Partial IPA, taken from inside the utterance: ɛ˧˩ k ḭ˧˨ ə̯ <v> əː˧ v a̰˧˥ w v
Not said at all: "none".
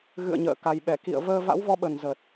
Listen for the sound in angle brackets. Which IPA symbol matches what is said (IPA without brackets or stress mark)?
v